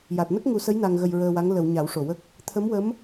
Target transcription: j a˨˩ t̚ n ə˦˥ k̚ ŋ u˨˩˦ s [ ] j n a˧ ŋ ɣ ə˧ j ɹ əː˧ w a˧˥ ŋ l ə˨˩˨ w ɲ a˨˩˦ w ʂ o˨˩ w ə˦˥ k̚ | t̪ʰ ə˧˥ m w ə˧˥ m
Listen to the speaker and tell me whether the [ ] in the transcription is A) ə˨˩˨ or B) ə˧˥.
B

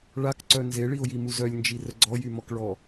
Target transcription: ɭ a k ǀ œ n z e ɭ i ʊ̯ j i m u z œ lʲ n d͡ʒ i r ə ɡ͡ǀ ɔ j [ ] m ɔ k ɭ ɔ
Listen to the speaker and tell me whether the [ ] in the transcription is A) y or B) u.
A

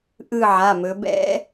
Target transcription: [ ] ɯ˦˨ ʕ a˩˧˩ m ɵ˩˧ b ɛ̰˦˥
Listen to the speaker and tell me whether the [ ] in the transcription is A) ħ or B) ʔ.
B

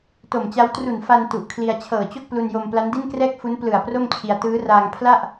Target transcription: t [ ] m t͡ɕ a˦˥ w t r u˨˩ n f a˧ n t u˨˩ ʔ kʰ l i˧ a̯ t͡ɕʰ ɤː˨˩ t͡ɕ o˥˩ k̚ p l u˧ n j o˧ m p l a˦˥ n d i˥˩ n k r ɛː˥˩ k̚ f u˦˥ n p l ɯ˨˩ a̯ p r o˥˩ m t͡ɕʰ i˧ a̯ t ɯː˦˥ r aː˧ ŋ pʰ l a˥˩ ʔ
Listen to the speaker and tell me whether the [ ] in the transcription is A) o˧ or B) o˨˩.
B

